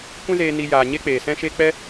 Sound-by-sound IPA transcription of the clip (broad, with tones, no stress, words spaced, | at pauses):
kʷɛ̃˦zeː˧ ni˧ jaː˨ ɲe˦k͡peː˨sɛ̃˦ʃe˦ k͡pɛ˦